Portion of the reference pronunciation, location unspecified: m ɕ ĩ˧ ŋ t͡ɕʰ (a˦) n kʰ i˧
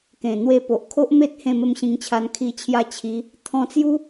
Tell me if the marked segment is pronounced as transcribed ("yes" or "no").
no